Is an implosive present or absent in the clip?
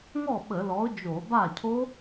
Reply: present